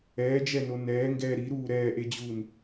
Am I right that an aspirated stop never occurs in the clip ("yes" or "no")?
yes